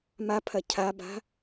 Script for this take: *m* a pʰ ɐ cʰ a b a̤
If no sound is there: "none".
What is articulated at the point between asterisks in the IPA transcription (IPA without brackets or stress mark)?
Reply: m